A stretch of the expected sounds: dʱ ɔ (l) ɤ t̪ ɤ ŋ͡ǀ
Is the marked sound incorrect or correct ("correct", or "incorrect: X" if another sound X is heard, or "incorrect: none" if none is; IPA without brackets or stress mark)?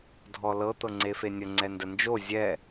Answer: correct